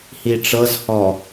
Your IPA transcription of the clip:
h i ʈ͡ʂ ɤ z h ɔ

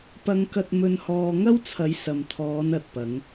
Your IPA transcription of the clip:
p ɐ˧ ŋ k ɐ˧ t̚ m ɵ˧ n h ɔː˧ ŋ ɐ˥ w t͡sʰ ɐ˨˥ j s ɐ˨ m t̪ʰ ɔː˨˧ n ɐ˨ t̚ p ɐ˨˧ ŋ

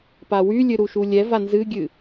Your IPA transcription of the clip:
p a w y lʲ ɨ ɾ u ʃ u lʲ ɛ v a n z ɨ ɡʲ ɨ

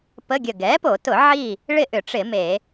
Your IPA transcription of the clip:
p ə˧˥˧ ɡʲ ə˧˩ ɡ ɛ˩˥ p o˧˩˧ t ʊ˧˩˧ ʕ i˥˨ | ɭ ɪ˥˨ ʔ ʏ˧˩˧ ʈ͡ʂ ɪ˧˩˧ m e˧˩˧

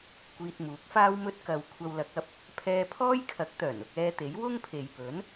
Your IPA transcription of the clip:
kʷ iː˧ t̚ m uː˨˥ k̚ f aː˥ w m ɵ˧ t̚ k ɐ˨ w kʷʰ ɐ˧ w l ɐ˨˥ k̚ ɐ˧ p̚ | pʰ ɛː˧ pʰ ɔː˥ j kʰ ɐ˨˥ k̚ t̪ œː˨˩ n ʊ˧ k̚ ɛː˧ t̪ e˨˥ j w ʊ˥ ŋ pʰ e˨ j p ɵ˨˥ n

